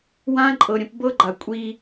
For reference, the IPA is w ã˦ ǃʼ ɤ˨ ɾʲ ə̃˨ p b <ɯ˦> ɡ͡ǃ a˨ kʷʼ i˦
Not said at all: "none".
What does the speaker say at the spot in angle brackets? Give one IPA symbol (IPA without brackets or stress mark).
ɤ˦